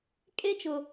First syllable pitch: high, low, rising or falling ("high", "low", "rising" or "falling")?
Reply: high